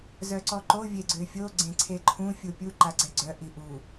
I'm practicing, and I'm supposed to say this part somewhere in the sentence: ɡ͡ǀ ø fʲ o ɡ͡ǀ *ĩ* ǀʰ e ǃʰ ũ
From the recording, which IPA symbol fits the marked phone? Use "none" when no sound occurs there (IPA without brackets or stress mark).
ẽ